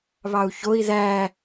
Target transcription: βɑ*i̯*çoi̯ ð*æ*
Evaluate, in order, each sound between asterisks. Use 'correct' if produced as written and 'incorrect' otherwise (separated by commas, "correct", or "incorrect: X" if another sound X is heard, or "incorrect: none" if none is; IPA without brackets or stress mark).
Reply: incorrect: u̯, correct